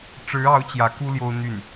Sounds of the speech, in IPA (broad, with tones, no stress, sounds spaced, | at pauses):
ʈ͡ʂ ɻ̩˧˥ ɑ˧˥ ʊ̯ t͡ɕ j ä˧˥ k u˥ l j o˥ ʊ̯ n̪ y˥˩ n